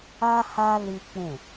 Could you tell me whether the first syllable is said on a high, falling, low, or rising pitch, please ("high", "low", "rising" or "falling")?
high